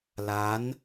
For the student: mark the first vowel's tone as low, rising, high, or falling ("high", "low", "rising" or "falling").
rising